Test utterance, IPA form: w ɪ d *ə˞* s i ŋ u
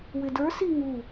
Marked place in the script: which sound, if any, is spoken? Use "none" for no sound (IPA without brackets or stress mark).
ə˞